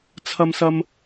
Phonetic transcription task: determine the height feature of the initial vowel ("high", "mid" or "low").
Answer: low